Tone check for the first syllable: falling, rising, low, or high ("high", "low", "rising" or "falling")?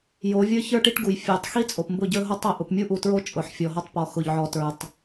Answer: rising